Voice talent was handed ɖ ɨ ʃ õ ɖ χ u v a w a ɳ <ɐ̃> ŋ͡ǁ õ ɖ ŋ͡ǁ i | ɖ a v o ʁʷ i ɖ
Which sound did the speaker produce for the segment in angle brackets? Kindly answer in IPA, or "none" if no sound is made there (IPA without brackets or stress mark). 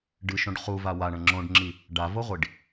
ɐ̃